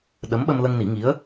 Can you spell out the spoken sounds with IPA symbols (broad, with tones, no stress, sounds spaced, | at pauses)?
ɗ ə˧˥ m ɓ ə˧ m l ə˧ ŋ n i˨˩˦ ŋ i˧˥ ə̯